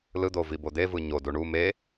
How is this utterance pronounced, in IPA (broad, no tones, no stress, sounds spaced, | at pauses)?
l ɯ d̪ o v i b o d̪ e v ɯ ɲ o d u ɳ u m e